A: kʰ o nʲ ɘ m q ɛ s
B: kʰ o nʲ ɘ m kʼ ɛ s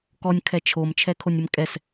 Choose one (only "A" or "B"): B